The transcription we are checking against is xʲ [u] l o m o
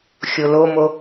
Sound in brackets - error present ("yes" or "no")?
yes